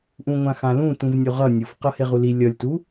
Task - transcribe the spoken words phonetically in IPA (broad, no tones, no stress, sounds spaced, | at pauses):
ʔ ũ ŋʷ ã x ã l ũ t ũ v nʲ o ʁ ʌ nʲ ʊ f q ʌ h e ʁ u l i lʲ ʌ lʲ t u